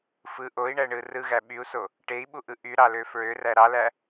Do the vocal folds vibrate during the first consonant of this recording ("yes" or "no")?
no